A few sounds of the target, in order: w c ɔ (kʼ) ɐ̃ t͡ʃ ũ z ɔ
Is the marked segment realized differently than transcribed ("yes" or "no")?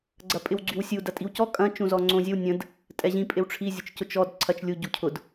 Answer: no